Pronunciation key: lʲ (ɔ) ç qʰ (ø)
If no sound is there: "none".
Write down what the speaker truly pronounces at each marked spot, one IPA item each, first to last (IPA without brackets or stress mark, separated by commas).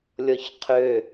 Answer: ɔ, ø